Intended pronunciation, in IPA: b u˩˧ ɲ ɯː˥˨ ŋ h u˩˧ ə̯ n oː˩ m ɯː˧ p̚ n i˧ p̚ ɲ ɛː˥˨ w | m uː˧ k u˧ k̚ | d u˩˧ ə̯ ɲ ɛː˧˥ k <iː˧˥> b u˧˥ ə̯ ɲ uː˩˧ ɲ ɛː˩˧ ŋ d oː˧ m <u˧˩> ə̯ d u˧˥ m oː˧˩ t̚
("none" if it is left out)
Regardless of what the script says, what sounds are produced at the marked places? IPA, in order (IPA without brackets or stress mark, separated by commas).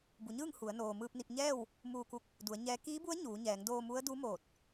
iː˧˥, u˧˥